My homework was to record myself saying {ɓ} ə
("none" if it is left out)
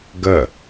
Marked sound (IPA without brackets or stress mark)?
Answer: ɡ